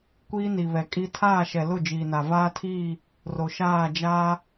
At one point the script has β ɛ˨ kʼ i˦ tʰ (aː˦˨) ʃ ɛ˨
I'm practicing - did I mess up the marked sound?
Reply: no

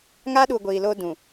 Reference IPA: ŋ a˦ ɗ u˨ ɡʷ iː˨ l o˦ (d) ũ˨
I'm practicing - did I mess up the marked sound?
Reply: no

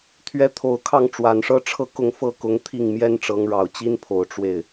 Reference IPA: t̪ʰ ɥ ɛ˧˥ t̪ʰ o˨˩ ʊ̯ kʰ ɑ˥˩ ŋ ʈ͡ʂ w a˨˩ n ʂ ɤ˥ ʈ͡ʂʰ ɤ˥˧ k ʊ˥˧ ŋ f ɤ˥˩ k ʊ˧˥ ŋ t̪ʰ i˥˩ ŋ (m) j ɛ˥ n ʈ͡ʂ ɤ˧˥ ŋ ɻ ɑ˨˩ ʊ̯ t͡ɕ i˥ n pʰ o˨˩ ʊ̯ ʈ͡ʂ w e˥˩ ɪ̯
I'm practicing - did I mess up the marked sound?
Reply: no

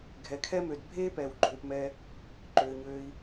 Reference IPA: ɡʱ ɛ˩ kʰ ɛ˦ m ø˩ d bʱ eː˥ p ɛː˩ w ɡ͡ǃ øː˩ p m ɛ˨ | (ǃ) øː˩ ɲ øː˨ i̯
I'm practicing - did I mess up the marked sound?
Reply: no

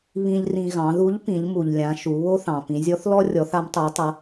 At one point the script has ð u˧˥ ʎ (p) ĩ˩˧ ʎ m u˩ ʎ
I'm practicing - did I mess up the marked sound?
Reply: no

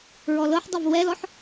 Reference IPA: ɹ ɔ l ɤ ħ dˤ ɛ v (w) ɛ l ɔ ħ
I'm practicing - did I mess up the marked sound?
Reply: no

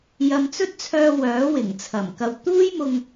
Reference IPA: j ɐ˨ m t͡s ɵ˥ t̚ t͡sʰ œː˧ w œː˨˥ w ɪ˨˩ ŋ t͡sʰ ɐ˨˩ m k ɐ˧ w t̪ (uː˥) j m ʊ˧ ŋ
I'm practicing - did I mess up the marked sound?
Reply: no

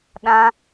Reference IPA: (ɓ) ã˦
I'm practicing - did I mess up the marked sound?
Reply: yes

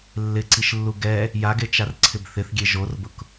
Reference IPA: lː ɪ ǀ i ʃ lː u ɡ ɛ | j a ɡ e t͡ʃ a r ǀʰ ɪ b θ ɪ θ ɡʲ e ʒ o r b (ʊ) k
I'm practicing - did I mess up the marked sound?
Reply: no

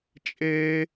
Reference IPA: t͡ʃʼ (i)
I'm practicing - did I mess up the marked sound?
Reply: yes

